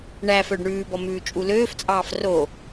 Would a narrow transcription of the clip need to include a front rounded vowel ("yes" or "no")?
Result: yes